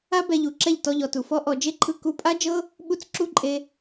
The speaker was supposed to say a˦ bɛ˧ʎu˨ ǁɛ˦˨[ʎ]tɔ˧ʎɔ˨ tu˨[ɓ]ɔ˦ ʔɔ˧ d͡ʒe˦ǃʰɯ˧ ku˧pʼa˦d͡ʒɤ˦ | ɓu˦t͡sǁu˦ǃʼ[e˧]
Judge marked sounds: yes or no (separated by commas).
yes, no, yes